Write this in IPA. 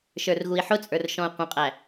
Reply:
ʃ ə˞ r ɣ u i̯ ħ ʊ t͡sʼ ə˞ r ʃ ɔ̃ u̯ qʷ ə̃ qʼ æ

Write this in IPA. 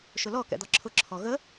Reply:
ʃ ʊ l ɔ k ɛ̰ d̪ ɒ ǁʰ ʊ ǁʰ ɔ ɣ ə

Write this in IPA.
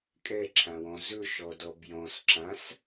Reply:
kʼ ɛ ǁʰ ã w ɔ̃ z ɵ ʃ ɔ d ɔ b j ɔ̃ s ǁ ã s

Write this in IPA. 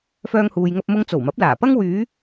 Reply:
f œː˥ ŋ h uː˧ j ŋ ɐ˥ p̚ m ʊ˧ ŋ t͡s o˨˩ w m ɐ˨˥ p̚ l aː˨˩ p ɐ˥ ŋ w yː˨˧

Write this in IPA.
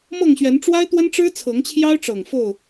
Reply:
m ɤ˥˨ ŋ ɕ ɥ ɛ˨˦ n ʈ͡ʂ w a˦ ɪ̯ t̪ w ə˦ n ʈ͡ʂ ɻ̩˦ t͡sʰ ɤ˨˦ ŋ t͡ɕʰ j ɑ˦ ʊ̯ ʈ͡ʂ ɤ˨˩ ŋ f o˥˨ ʊ̯

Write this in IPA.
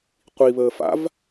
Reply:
qʷ i β əː f a̰ v

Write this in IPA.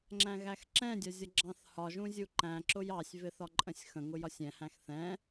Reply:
ŋ͡ǁ æ̃ ɣ æ x ǁ ɛ̃ dʲ ɒ zʲ ʌ ɡ͡ǁ ɑ̃ θ h ɒ ʒ ũ zʲ u ǃ æ̃ ǁ ʊ j ɑ sʲ v ɪ θ ɒ ǃʼ ə̃ sʲ x ə̃ ŋ ʊ j ɒ sʲ ɛ̃ h æ̃ x θ ɛ̃

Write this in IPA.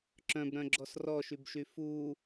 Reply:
ǁ œ̃ b ɾ œ̃ ɡ͡ǁ ɔ s r ɔ ʃ y b ʃ y f u

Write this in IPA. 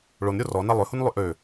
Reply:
ɭ o n ɾʲ o r ɔ n a lˠ ø h u n lˠ y ʔ ø

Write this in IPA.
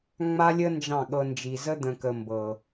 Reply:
ŋ͡m a˦ lʲ ə˦ n d͡ʒ ɑ̃˦˨ ɠ ɤ˧ n d͡ʒ i˨ z ə˦ d̪ ə̃˨ k ə˨ m b ɤ˨

